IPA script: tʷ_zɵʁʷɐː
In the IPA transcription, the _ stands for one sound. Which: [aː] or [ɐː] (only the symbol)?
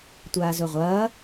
aː